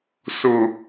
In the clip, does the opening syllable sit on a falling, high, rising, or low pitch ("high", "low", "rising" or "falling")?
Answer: low